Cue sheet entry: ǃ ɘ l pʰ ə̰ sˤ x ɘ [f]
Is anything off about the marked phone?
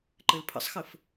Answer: no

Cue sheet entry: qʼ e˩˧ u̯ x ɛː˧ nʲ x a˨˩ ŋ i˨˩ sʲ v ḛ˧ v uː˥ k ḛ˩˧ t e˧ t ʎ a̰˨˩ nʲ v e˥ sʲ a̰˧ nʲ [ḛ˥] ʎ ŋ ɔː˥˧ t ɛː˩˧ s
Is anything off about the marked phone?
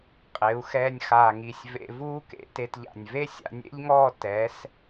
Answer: no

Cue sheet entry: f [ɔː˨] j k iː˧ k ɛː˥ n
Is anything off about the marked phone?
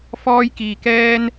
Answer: yes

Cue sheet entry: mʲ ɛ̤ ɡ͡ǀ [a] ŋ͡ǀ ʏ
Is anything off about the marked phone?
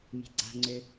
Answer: yes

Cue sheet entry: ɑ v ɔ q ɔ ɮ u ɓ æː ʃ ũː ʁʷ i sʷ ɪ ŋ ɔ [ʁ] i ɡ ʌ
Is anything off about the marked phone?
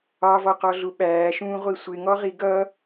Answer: no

